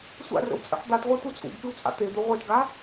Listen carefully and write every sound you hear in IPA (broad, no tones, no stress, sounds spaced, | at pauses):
sʷ a̰ r ə̰ w t͡sʼ ə̰ ħ d̪ a t ʁʷ e t̪ u t͡sʼ ṵ ɡ k ɨ w t͡sʼ a̰ t̪ e d̪ u ʁʷ e t ɡ a